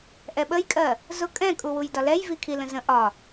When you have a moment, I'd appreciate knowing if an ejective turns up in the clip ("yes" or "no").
yes